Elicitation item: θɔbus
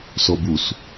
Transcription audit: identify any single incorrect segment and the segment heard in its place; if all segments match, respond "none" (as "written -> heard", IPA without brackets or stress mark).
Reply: θ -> s